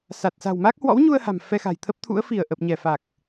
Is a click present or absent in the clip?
absent